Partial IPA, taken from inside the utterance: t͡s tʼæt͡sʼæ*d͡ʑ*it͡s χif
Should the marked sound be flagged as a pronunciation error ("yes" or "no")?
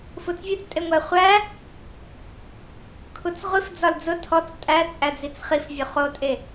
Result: yes